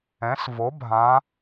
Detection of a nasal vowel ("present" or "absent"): present